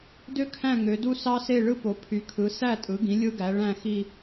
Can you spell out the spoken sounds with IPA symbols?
d ø˦ kʰ æ̃˦˨ ŋ ø˩˧ d u˦ s ɑ˦ s e˦˨ ɭ ɯ˦ p o˩˧ pʰ y˩˧ kʰ ɯ˩˧ s æ˦˨ tʼ ɯ˩˧ ɡ ĩ˩˧ lʲ ɯ˦ ɡ æ˩˧ ɭ æ̃˦˨ x i˦˨

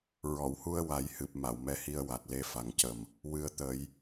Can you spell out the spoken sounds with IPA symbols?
ɹ ɔ˨˩˨ w h u˧ ə̯ w a˨˩˦ j h ɨ˨˩ p̚ m a˨˩˨ w m ɛ˧˥ h i˧ ə̯ w a˨˩ t̚ l e˧ f a˨˩ ŋ c ə˨˩ m | w ɨ˨˩ ə̯ t̪ ə˨˩˦ j

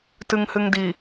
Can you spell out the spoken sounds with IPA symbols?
t ɨ ŋ h ɨ ŋ d i

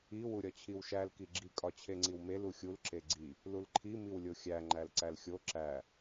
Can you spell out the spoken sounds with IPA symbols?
i w u ɾʲ ɒ t͡ɕʰ i w ʃ æ l k i ɡ͡ǁ i kʼ ɒ t͡ɕʰ e ŋ͡ǀ i w m e l u xʲ u l ǁ e ɡ͡ǀ i | l u l ǃʰ i m i w lʲ o xʲ æ ŋ͡ǃ æ l ǀ æ l xʲ o ǁ æ

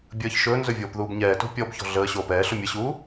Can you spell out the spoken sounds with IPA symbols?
bʲ əː ç ʃ ɵː n z ɵ vʲ oː p ð uː b ɲ ɛː t o̤ pʲ ɔ b ç ɔ̤ ɮ əː ɕ oː p ɛː ɬ ʊ mʲ ə ɕ uː

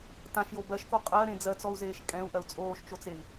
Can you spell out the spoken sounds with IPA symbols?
t ã ʃ j o b ɜ ʃ k o qʼ ɜ ɾ ẽ d͡z ɜ t͡s ɔ u̯ z eː ʃ kʼ ɛ̃ u̯ ʔ ɜ u̯ t͡sʼ oː ʃ t͡ʃ o t͡s e i̯

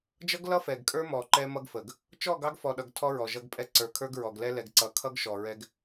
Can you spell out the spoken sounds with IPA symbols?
d͡ʒ ʌ˦ ɡ l ʌ˦ f ɛ˨ ɡ kʼ ə˞˦ m ɔ˨ ǃ ɛ˦ m ʌ˦ ɡ f ə˨ ɡ | t͡ʃ ɔ˦˨ ɡ ɑ˦ ɡ f ɔ˨ ɗ ʌ˨ ɡ tʰ ɔ˦ ɹ ɔ˨ ʒ ʌ˦ ɡ pʼ ɛ˦ ǀ ə˞˨ kʰ ə˞˦ ɡ ɹ ɔ˨ ɡ l ɛ˦ l ɛ˨ ɡ ǀ ʌ˨˦ kʰ ʌ˦ ɡ ʃ ɔ˨ ɹ ɛ˦ ɡ

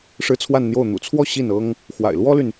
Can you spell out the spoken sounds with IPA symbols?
ʂ ɻ̩˥˧ t͡sʰ w a˥˧ n n̪ j o˥˩ ʊ̯ n̪ ṵ˨˩ t͡sʰ w ɔ˥˧ ɕ i˥˩ n ɤ˥ ŋ | x w a̰˨˩ ɪ̯ l w ɔ˥ l y˨ n

